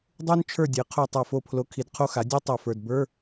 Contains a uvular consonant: yes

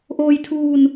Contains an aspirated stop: yes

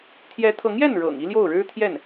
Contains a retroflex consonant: yes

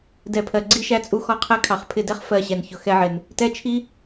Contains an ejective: yes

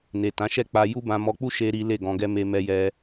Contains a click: no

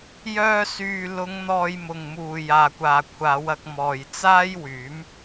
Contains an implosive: no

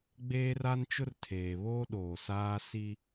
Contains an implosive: yes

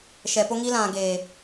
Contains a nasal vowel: yes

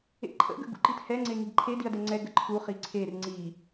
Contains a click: yes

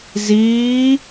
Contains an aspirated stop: no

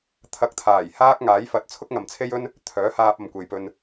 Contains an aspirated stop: yes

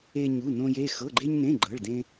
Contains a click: yes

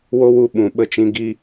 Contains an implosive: yes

